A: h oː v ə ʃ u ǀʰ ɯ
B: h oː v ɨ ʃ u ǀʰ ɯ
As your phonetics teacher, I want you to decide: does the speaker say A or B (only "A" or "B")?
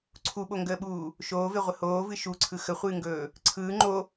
B